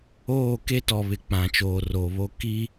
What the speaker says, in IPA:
oː˦˨ k e˦ t ɔ˨ β ɪ˨ k͡p ã˨ t͡ʃ oː˨ r o˨ β o˦ k i˦

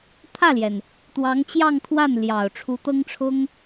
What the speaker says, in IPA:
t̪ʰ ä˥˩ l j ɛ˩ n | t̪ w ɑ˧˥ ŋ t͡ɕ j ɑ˥˧ ŋ t̪ʰ w a˥˩ n l j ɑ˨˩ ʊ̯ ʈ͡ʂʰ u˧˥ t̪ ɤ˥ ŋ ʈ͡ʂʰ ʊ˥ ŋ

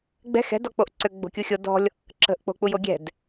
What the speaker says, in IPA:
ɡ͡b ɛ̤ x ɛ̤ d ɔ k͡p o ʔ ǀ ø ɡ͡b o̤ kʲ u xʲ o d ɔ̤ lʲ | ǁ ə̤ ʔ k͡p o̤ k͡p u j o ɡʲ ɛ̤ d

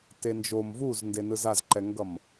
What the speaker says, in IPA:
t e n d͡ʒ o m v u z n d e n ɯ z a z ǃ ɛ ŋ ɡ ʌ m

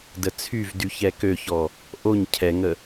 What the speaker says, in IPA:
d ə t͡sʰ y v d y ç ɛ k ø ç ɔ | ʔ o ɲ cʰ ɛ ŋ ə

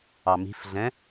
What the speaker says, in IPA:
ɑ m i̤ f ɮ ɛ̃

